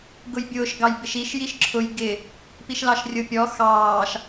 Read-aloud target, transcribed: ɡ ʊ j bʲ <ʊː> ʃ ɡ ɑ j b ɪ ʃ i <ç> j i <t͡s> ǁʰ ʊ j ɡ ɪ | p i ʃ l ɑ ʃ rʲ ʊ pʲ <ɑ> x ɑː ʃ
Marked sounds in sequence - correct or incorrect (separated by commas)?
correct, incorrect, incorrect, incorrect